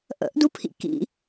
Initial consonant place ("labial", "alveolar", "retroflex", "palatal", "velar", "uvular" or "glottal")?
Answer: glottal